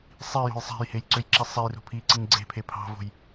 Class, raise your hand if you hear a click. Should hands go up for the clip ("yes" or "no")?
yes